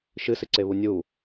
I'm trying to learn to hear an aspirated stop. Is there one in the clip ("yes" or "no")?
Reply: no